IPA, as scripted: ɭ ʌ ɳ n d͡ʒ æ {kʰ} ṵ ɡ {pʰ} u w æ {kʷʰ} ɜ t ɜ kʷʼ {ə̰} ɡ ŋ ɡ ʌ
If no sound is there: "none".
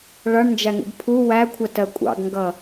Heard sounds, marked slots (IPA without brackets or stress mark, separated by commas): ŋ, pʰ, kʷʰ, ɑ̰